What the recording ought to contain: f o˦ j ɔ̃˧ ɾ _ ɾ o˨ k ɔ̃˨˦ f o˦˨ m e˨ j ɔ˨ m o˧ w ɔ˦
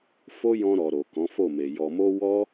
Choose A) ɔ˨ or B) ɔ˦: A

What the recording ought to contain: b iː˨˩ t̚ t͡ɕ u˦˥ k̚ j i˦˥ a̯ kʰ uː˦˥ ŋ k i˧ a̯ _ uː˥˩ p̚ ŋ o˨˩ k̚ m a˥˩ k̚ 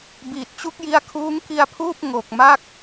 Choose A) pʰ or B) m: A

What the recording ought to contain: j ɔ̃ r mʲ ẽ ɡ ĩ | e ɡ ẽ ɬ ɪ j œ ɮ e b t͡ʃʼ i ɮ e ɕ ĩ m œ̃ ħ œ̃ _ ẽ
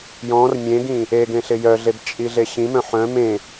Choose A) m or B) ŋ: A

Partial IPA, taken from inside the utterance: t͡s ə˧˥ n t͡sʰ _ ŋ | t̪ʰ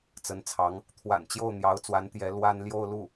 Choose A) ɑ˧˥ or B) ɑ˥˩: A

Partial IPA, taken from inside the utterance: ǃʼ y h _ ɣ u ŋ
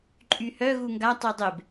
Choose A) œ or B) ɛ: A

